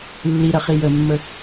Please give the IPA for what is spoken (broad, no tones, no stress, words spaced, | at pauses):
lːiɾɐχi jəmːə